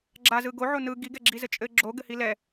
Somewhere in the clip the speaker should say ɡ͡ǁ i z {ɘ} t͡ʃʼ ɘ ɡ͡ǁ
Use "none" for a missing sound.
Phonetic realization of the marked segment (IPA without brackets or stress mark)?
ɘ